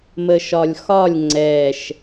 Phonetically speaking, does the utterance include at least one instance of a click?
yes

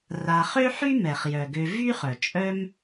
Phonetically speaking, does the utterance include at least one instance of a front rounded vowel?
yes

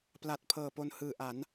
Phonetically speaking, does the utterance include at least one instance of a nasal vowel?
no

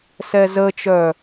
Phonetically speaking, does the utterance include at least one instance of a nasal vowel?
no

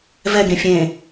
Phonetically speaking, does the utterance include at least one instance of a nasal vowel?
yes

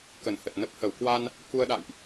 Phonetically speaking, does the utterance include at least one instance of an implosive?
yes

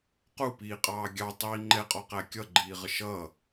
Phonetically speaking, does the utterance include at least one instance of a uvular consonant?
yes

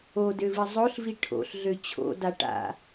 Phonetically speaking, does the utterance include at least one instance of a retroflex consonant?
yes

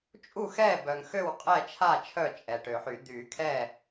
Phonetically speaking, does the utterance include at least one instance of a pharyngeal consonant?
yes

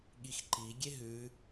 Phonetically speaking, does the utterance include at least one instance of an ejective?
no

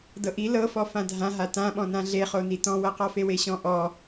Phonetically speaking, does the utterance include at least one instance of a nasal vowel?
yes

